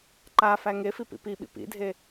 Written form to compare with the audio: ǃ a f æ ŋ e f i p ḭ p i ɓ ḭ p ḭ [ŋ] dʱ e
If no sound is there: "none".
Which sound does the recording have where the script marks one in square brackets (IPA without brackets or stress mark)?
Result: none